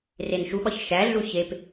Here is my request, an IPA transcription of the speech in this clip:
r e n ʃ u ɓ ɒ ç ʃ æ ɮ u ç e p

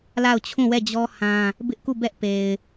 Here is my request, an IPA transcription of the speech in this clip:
l a˦˨ ʊ̯ t͡ɕʰ ũ˦˨ w ɛ˦˨ d͡ʑ ɔ˦ h ã˦ | b ɪ˦ ʔ k u˦˨ b ɛ˦ ʔ p e˨ ɪ̯

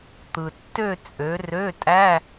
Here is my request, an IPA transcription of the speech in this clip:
t̪ ɯ˩ tː ø˦˨ t͡sʼ ø˩˧ r ø˧˥˧ tʼ æ˧˥˧

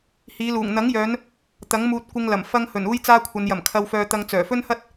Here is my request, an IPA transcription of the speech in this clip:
h iː˨˧ l uː˨˩ ŋ n̪ ɐ˨˥ ŋ j œː˨˧ n | t̪ ɐ˨˥ ŋ m uː˧ t̚ kʷ ɪ˧ ŋ l ɐ˨˩ m f ɐ˧ ŋ h ɵ˨˩ n uː˥ j t͡s aː˥ kʷʰ ɐ˨˧ n j ɐ˨˩ m kʰ ɐ˧ w f œː˧ t̪ ɐ˧ ŋ t͡s œː˨˩ f ɵ˥ n h ɐ˥ t̚

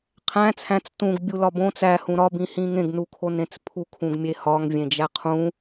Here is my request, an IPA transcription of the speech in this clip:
qʰ æ̃ t͡sʰ æ̃ t͡s t ũ ɡ bʲ u l ɒ b õ t͡s æ h ũ ɾ ɒ b ĩ h ĩ ŋ ẽ ɡ n u kʰ o n ẽ t͡s pʰ u kʰ ũ ɡ mʲ e h ɒ ŋ vʲ ẽ d͡ʒ æ qʰ ũ

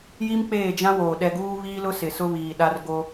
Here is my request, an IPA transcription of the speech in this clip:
j i˦ m k͡p eː˦˨ d͡ʒ ã˦ w oː˨ ɗ ɛ˨ ɡ uː˦ β iː˦ l ʊ˦ s ɪ˨ s ʊ˦ β iː˨ ɗ a˦ r ɡ o˦

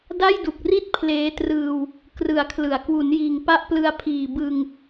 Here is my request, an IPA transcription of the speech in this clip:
d a˥˩ j d u˨˩ k̚ r i˥˩ t̚ pʰ l eː˦˥ t r ɯː˧ w | k r ɯ˨˩ a̯ kʰ l ɯ˩˦ a̯ k w u˩˦ n j iː˨˩ ŋ p a˦˥ ʔ p l ɯ˧ a̯ pʰ iː˨˩ b ɯ˧ ŋ

